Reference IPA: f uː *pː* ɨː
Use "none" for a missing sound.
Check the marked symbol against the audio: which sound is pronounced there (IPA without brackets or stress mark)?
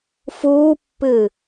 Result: pː